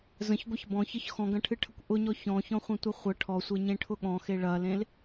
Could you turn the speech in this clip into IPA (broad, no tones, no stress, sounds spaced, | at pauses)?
z ə̃ ç ɡʷ ɐ ç b ɔ̃ ç ə ç x ɔ̃ ɡ ɐ̃ ʈʰ ɨ ʈʰ ə kʷ ʔ ʊ ɲ ɔ ç ɔ̃ ç ɔ̃ χʷ ɐ̃ tʷ ɐ χʷ ə ʈʰ ɔ sʷ e ɲ ẽ ʈʰ ʊ ɠ ɔ̃ x e ɭ ɐ l ẽ l